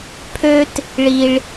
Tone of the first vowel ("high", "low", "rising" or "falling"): high